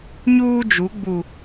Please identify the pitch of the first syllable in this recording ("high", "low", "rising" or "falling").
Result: high